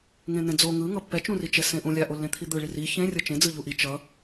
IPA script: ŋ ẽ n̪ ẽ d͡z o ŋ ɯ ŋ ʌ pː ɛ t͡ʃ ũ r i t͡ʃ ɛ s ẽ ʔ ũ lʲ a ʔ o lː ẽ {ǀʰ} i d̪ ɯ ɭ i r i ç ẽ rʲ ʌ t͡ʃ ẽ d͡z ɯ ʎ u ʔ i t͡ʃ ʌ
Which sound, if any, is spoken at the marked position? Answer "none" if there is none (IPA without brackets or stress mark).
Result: t̪ʰ